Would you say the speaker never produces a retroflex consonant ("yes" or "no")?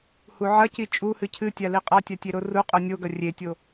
yes